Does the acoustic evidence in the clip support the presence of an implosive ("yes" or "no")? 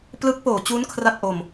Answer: no